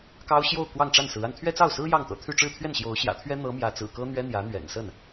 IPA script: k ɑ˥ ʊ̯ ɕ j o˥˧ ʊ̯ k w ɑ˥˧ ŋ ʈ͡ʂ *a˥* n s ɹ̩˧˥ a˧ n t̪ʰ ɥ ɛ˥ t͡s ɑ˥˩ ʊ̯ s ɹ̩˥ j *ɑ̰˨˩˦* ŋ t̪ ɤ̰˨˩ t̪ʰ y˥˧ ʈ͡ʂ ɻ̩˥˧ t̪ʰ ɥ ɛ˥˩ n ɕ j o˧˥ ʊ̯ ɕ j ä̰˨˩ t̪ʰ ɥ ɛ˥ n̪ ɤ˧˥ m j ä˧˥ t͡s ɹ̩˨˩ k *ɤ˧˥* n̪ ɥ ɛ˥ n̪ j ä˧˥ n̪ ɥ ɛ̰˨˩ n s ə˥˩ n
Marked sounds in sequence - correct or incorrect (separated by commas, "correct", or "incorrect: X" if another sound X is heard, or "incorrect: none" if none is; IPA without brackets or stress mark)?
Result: incorrect: a˥˩, incorrect: ɑ˥˩, incorrect: ɤ˥